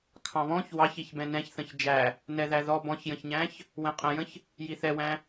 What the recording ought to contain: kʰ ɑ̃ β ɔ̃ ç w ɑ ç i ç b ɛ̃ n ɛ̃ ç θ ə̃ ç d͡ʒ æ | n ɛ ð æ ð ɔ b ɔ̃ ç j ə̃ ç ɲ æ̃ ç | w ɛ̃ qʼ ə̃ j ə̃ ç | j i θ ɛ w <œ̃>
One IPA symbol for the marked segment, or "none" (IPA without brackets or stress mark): æ̃